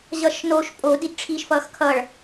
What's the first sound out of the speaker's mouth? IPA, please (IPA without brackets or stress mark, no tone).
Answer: ʑ